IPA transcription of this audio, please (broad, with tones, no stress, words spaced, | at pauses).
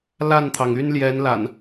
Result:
la˥˨nt̪ʰɑ˩ŋy˦n ljɛ˨˦nla̰˨˩n